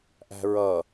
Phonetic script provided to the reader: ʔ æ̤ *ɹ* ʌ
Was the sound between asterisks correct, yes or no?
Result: yes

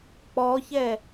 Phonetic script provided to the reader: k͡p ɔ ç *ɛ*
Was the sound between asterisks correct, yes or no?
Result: yes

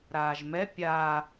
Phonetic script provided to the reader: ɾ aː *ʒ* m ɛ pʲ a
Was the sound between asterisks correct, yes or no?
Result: yes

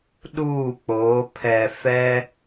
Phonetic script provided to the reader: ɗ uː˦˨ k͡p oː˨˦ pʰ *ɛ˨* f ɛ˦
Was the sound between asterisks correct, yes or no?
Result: yes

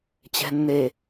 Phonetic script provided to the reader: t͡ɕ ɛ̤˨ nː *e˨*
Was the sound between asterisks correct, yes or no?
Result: yes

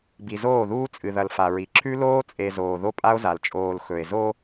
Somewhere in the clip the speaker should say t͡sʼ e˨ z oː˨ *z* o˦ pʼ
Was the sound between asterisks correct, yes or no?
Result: no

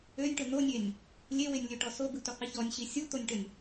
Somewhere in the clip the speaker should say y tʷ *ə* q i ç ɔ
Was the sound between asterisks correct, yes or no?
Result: yes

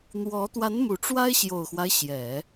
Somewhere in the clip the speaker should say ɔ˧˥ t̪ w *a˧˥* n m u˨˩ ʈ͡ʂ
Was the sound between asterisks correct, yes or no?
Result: yes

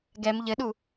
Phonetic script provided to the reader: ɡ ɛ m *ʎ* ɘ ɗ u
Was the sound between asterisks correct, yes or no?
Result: yes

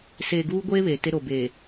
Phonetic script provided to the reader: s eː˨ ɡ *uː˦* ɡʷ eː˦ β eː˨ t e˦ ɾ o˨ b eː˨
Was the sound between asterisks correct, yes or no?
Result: yes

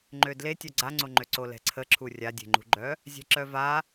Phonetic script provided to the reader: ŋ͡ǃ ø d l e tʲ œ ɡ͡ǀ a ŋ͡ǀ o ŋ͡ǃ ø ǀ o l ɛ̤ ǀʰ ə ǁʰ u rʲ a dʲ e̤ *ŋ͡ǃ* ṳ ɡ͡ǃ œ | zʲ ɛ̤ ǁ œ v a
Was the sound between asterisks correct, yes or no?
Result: yes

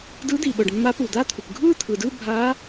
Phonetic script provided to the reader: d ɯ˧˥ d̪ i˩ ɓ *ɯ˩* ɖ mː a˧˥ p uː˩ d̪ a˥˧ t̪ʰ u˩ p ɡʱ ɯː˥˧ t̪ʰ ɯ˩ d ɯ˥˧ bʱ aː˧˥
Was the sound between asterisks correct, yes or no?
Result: no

